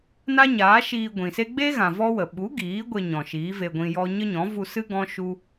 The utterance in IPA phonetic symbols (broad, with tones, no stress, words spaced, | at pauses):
na˦ɲaː˨˦ʃiː˧ ɡʷĩ˨se˦ ɡ͡be˦ɣã˨ vɔ˦wə˨ ɓu˨˦ ɡiː˨˦ɡʷe˧ɲɔ̃˨ ʃiː˨˦ve˧ɡʷĩ˧jɔ˦ ɲə˦ɲɔ̃˨˦ vu˧sɨ˦ ɡɔ̃˦ ʃu˦